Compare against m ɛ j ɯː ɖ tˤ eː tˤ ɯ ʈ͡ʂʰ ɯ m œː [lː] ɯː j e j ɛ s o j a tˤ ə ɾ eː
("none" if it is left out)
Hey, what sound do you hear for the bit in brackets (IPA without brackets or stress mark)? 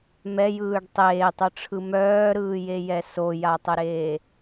ɾ